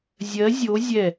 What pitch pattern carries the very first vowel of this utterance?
rising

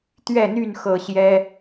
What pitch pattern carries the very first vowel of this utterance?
falling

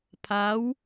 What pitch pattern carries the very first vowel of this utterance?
rising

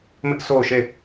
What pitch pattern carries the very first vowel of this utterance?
high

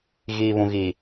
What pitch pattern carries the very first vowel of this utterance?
low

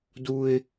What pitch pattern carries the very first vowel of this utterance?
high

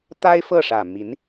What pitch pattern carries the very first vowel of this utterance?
high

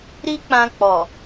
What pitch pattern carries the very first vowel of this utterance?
high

